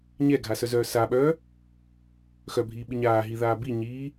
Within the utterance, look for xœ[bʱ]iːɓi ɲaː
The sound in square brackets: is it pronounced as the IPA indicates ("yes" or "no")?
yes